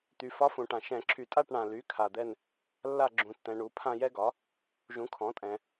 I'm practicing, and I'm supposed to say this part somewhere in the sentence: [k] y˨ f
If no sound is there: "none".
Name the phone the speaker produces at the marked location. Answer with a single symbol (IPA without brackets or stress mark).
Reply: t̪